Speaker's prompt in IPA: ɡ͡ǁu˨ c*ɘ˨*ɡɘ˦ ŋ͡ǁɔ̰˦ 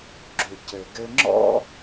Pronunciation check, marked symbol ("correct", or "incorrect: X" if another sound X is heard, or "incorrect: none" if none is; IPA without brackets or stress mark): correct